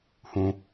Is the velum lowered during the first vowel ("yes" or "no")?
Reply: yes